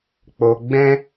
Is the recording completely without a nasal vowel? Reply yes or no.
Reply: no